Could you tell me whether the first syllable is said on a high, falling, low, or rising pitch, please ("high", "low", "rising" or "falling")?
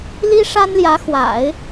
high